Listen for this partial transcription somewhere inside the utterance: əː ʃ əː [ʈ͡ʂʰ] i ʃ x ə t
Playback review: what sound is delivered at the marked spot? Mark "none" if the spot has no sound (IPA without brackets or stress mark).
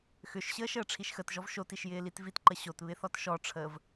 ʈ͡ʂʰ